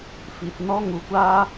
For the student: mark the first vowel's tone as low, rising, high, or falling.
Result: low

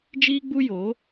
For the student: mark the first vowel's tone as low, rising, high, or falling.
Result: high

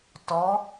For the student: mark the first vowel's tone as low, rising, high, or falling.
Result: rising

